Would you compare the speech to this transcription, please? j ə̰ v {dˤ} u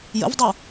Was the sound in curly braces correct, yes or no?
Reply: yes